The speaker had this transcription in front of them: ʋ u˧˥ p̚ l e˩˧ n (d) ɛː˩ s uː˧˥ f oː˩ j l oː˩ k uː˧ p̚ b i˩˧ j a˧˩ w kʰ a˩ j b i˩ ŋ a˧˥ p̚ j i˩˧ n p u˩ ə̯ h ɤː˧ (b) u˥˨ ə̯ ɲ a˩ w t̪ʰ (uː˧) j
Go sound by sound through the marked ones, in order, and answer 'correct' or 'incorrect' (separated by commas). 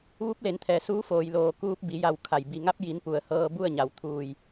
incorrect, correct, incorrect